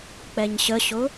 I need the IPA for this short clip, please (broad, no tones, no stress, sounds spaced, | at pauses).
k͡p ɛ ɲ ɕ ə ɕ ʊ